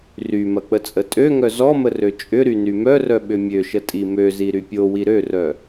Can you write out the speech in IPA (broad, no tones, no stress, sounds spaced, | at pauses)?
r y m ɐ k͡p ə t͡sʼ ə tʼ ø ŋ œ z ɔ m ə r ø t͡ʃʼ ʏ ɾ y n y m œ r œ ɓ ʏ mʲ ø ʃ ə tʼ i m ø z i ɾ y pʲ o w i ɾ ø r œ